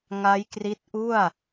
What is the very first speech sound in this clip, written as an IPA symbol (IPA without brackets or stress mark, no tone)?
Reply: ŋ